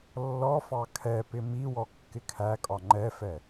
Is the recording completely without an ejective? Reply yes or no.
no